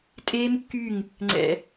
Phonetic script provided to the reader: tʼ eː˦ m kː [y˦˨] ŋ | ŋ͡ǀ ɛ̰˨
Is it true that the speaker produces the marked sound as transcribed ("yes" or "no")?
yes